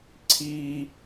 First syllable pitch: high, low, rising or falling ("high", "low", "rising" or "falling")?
high